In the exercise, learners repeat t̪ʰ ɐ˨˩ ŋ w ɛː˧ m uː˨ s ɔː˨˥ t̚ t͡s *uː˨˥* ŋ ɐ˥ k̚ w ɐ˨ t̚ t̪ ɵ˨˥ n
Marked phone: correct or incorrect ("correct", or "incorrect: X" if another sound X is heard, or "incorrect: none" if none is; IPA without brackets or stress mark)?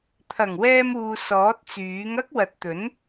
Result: incorrect: yː˨˥